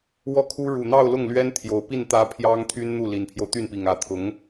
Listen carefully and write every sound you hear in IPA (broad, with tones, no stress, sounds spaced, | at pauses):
w ɔ˥˩ kʰ u˥ ɻ u˨˩ n̪ ɑ˥˧ ʊ̯ l ʊ˥˩ ŋ l ɥ ɛ˥ n t̪ʰ j o˨˩ ʊ̯ p i˥˩ n t̪ ä˧˥ pʰ j ɑ˥ ŋ t̪ʰ y˥ n n̪ u˥˩ l i˨˩ n pʰ j o˦ ʊ̯ t̪ y˥˩ n p i˨˩ ŋ ä˧˥ t̪ʰ ʊ˧˥ ŋ